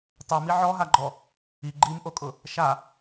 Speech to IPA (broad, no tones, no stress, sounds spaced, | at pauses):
tˤ u m i ʕ ɔ ɦ a ɡ͡ǃ ɔ | i ɡ͡ǃ i m ʔ o kʼ ʊ | ʃ a